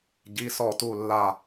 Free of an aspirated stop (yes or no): yes